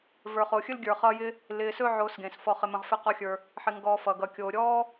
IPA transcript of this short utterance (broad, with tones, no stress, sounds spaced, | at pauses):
v ə˞˨ χ o˨ xʲ ɵ˥ l ɡʲ ə˞˨ χ ʌ˦ j ɪ˥ | l ɪː˨ s ɵ˦ ʕ oː˨ s ɡ ẽ˩ s f ɔ˨ χ ɪ˨ m ə̃˩ ʁ f ɪ˨ q ɔ˨ xʲ ə˞˩ | ħ ɪ˨ ŋ ɡ ɔː˨ f ʌ˩ ɡ ʌ˩ kʲ oː˩ ɾʲ ɔː˦